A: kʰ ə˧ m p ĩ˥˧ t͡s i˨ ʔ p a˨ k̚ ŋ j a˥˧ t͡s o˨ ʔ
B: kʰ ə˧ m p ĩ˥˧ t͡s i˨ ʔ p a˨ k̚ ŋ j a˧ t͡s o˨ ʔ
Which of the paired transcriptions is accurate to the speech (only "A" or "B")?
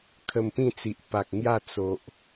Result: A